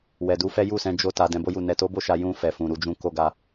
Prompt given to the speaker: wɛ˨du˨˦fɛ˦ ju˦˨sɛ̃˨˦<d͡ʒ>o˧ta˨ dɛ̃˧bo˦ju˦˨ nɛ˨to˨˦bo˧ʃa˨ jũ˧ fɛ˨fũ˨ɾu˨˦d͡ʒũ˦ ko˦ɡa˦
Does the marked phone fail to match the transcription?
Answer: no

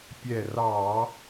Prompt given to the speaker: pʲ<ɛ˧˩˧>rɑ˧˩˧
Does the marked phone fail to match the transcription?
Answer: yes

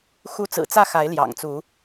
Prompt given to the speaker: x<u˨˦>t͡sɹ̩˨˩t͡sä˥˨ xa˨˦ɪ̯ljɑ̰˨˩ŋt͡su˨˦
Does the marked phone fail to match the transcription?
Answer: no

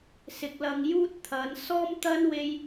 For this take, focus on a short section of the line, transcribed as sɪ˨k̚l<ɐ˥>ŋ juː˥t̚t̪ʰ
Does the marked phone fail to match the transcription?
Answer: yes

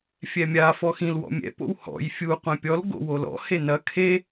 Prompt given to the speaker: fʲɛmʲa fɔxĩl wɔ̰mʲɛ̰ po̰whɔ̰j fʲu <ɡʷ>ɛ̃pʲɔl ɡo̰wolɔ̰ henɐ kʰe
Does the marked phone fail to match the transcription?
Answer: yes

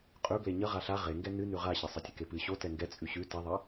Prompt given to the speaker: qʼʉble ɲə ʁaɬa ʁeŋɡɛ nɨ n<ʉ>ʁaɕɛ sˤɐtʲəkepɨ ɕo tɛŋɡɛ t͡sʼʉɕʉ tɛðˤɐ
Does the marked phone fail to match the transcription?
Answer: no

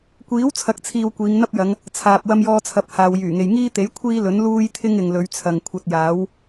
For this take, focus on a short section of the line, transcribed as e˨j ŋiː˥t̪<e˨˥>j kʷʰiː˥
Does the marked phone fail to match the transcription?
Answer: no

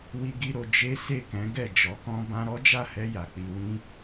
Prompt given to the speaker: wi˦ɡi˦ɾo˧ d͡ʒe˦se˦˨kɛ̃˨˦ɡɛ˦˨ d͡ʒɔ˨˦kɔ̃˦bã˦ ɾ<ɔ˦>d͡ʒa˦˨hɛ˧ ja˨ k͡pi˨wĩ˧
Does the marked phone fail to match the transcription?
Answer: no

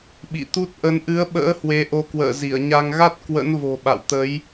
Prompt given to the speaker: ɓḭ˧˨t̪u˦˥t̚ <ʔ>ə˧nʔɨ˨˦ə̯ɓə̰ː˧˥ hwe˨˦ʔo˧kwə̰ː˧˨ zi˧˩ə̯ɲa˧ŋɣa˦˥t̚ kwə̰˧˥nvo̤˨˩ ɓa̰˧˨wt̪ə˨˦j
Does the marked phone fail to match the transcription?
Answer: no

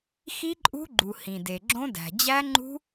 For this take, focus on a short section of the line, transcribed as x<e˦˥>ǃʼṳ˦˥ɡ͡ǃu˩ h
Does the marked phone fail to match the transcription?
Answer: yes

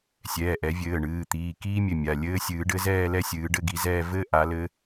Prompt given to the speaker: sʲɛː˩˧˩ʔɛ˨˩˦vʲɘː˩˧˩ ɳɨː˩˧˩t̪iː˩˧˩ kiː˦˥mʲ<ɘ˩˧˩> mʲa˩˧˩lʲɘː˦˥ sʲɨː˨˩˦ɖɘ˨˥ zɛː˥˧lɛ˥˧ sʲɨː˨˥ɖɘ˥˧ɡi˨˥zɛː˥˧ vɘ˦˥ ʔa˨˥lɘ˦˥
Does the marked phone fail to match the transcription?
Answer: no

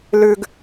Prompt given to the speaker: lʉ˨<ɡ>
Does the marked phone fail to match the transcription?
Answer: no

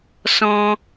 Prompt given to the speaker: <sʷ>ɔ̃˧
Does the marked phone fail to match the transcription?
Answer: yes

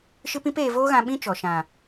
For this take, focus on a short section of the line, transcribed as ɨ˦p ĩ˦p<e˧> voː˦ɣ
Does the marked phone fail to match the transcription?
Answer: yes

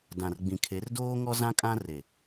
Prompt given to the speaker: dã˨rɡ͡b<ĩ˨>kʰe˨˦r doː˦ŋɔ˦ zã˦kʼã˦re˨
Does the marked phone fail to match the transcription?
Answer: no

